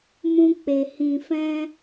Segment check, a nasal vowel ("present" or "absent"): present